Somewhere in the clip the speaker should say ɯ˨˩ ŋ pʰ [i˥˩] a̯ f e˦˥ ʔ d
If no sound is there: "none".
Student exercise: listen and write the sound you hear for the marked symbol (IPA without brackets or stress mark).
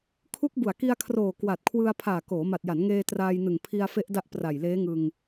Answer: i˧